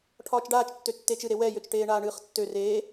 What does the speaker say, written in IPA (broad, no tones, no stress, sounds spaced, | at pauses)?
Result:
ʈʰ ɒː t͡ʃ ɖ aː t͡ʃ tː ø tː eː t͡ʃ ɨ ɾ e w ɛ j ø t͡ʃ ʈ eː ɳ aː ɳ ɨː χ tː ø r eː